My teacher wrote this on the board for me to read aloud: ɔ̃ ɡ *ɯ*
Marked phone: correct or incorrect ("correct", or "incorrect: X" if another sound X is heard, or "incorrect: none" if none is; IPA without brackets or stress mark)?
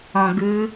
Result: correct